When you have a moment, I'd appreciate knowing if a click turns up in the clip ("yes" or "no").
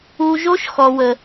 no